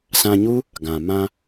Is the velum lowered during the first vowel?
yes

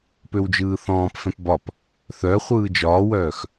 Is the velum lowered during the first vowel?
no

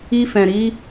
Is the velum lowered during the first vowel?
no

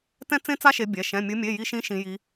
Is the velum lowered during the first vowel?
yes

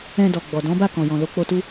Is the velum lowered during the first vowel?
yes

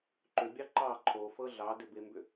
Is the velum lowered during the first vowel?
no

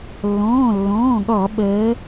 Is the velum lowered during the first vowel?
yes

